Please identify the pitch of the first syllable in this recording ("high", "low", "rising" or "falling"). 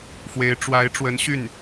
rising